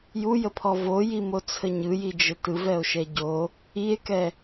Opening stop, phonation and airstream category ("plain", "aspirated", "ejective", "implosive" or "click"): aspirated